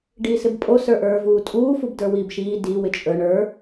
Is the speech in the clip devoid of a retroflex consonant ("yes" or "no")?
no